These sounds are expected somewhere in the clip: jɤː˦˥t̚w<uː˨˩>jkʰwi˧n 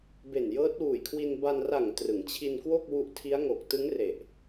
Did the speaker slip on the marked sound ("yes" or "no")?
no